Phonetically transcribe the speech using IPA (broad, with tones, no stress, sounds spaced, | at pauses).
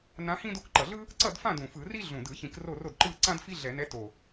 n ã˧˥ h ĩ˥ d o˥˨ k ǃ ʌ˨˩ ɮ ɯ˥ | ǀ ʌ˥˨ d f ã˥˨ d ũ˨˩ f ɯ˧˩˧ r i˥ ɮ ũ˨˩ d ɯ˧˩˧ ç ĩ˧˩˧ k r o˥˨ r o˥˨ d ǃ ɯ˥˨ ǀ ã˥ d f i˥ ɮ ɛ˧˩˧ n ɛ˧˥ t o˨˩